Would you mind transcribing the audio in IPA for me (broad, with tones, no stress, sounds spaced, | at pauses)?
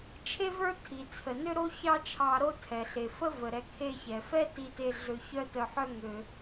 t͡ʃʰ e˥ v ə˞˥ tʰ i˩ t͡sʰ ə˩ n ø˥ ɾ o˥ ç ɑ˥ t͡ʃʰ ɑ˧ ɾ o˥ tʰ ɛ˩ ɬ e˩ f ə˥ v ə˩ ɾ ɛ˧ kʰ e˧ ç ɛ˩ f ɛ˥ t i˥ t e˥ ɮ ø˧ ç œ˥ t œ˧ ħ œ˥ ŋ ø˧